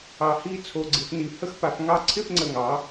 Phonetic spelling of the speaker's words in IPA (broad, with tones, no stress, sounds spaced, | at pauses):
ɑ˧˩ h i˥˧ t͡sʰ o˧ ɡ͡ǀ ɪ˩˧ f n i˩˧ h ə˧ x p a˧ f ŋ ɑ˥˧ ǀʰ ɪ˥˧ f ŋ͡ǀ ə˧˩ ŋ ɑ˩˧